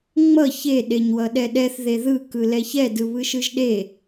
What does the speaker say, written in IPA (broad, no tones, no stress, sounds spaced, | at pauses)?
ŋ͡m ʌ ç e ɗ e ɲ w ʌ ɗ ɛ ɗ ɛ θ ð e ð ɯ k ɯ l ɛ ç ɛ d ɯ β ɯ ʃ ɯ ʒ ɗ e